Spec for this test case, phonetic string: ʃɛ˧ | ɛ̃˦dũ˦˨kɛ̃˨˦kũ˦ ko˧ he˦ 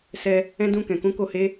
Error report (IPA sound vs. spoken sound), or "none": ʃ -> s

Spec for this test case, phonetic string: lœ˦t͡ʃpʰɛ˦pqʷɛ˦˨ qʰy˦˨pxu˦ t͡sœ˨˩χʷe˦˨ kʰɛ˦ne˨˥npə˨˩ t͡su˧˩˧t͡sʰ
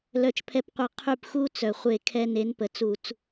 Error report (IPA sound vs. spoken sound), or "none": t͡sʰ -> t͡s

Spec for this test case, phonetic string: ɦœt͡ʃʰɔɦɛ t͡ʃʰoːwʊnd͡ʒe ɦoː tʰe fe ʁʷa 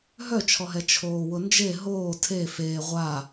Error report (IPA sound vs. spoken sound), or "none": none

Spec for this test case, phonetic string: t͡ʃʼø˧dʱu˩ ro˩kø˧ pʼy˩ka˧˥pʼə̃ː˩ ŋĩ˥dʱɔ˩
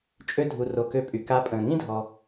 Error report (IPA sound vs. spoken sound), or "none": none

